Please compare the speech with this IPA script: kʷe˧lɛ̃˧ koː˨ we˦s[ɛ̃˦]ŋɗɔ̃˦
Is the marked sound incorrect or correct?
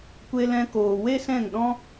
incorrect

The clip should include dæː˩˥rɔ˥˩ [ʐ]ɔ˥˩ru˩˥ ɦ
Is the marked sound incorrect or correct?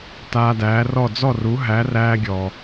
incorrect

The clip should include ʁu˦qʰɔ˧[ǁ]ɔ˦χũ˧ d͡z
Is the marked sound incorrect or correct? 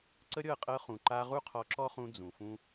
correct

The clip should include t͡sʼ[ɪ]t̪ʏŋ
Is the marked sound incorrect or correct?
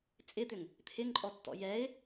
correct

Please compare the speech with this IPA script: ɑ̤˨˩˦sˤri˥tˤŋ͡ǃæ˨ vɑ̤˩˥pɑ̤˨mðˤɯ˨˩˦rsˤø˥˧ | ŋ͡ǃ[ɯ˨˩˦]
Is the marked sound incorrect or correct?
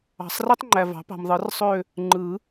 correct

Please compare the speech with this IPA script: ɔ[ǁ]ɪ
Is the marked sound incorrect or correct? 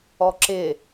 correct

